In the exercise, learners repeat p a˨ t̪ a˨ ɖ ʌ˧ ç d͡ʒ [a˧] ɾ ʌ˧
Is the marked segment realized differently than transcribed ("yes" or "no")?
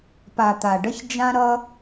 yes